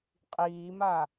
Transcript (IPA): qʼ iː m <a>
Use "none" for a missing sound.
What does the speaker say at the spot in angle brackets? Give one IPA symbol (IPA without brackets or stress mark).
a